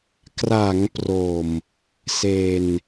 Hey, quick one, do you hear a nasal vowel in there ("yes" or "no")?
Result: no